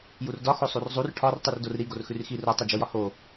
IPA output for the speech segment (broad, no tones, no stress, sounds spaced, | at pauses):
j u r d ɒ x o sˤ u r zˤ u r ʈʰ ɒ r tˤ ʉ r d o r ɾ i ɡ o r x ʉ r x i r o tˤ i d͡ʒ o j ɒ h o